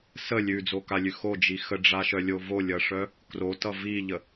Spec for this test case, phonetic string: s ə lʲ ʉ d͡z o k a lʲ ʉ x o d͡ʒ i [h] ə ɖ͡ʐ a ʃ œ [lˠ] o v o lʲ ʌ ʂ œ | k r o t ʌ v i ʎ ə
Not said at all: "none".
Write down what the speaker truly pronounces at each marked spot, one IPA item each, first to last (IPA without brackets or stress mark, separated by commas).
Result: x, lʲ